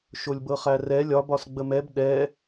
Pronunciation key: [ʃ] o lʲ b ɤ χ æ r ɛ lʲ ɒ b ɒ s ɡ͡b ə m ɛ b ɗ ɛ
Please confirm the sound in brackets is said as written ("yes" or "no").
yes